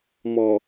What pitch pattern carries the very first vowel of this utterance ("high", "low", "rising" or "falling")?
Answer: low